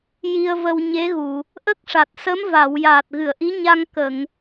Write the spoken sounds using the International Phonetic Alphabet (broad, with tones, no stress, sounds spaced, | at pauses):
j i˧ ə̯ v ə˧ w ɲ e˧˥ ɣ u˨˩˨ | ʔ ə˦˥ k̚ ʂ a˨˩ t̚ s ə˧˥ m v a˨˩˨ w j aː˨˩ t̚ ɣ ɨ˨˩˨ ə̯ ʔ i˧˥ ɲ a˧ ŋ k ə˨˩˨ ŋ